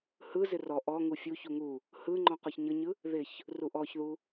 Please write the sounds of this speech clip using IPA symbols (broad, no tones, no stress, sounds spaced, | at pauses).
h ɯ z ɪ r ɔ ʔ ɔ ŋ u fʲ u ç u ŋ u | h ɯ ŋ͡ǃ ɔ̃ q ɔ ç ɲ ɤ ɲ ɯ | ð ɪ ç | r u ʔ ɔ ç ð u